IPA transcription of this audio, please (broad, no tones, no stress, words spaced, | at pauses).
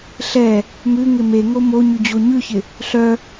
ɬɛ | mʉŋɪ meŋo mo ɲʉd͡ʑoɲʉçɪ | ɬœ